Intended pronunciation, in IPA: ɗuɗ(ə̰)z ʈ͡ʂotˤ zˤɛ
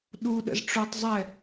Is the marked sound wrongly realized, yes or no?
no